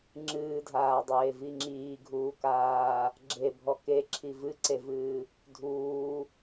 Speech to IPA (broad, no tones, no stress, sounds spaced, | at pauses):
ŋ͡ǁ ɨː dʱ aː dˤ eː v i ŋ͡ǁ iː ɡʱ uː k aː | ɡ͡ǁ e bʱ ɔ k e ǁʰ i v ɨ ǀ e v ɨː | dʱ uː